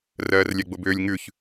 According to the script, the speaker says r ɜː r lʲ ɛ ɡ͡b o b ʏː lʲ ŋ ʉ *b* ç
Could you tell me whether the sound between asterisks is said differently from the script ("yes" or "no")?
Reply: yes